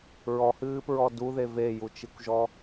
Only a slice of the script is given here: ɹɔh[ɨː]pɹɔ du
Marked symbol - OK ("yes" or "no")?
yes